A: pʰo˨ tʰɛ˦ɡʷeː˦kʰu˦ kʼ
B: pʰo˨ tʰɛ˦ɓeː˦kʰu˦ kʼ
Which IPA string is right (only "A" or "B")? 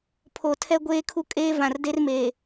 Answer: A